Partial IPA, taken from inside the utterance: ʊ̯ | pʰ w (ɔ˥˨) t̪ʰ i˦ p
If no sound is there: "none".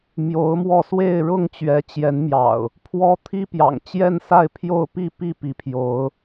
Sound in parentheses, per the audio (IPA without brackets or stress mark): ɔ˦